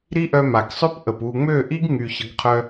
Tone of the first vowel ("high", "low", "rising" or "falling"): high